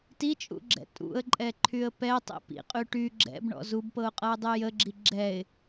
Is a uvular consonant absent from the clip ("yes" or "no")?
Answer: no